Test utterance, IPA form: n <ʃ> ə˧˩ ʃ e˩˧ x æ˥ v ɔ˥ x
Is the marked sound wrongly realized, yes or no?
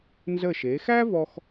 yes